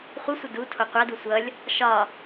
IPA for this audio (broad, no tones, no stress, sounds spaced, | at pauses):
χʷ ə sʷ ʌ d u tʰ o qʷ a d u sʷ ʌ lʲ | ʃ ɒ